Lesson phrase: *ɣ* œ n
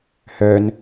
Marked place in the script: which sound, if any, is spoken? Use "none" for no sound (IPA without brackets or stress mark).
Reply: h